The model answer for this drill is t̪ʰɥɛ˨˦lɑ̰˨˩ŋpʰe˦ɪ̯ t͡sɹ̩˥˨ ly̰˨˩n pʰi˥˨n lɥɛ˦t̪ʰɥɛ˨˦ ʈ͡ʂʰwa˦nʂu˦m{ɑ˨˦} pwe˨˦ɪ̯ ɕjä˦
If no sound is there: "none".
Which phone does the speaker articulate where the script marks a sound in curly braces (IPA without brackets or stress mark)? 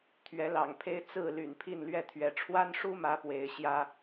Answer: ä˨˦